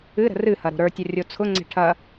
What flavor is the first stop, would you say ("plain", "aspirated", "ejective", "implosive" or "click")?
plain